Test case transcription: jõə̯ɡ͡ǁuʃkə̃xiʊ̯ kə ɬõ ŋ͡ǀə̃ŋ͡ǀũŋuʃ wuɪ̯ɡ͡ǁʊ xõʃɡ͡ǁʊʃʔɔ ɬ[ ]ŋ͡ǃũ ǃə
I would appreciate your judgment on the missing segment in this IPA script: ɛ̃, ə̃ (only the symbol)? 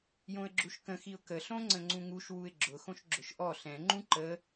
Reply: ɛ̃